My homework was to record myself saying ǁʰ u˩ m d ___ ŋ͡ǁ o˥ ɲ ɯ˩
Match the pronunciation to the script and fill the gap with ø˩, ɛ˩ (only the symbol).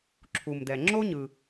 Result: ɛ˩